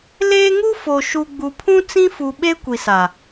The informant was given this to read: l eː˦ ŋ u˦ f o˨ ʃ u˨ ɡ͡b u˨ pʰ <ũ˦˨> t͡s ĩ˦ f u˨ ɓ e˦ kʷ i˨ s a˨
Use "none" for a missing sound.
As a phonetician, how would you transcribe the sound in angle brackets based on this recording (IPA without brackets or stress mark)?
ũ˦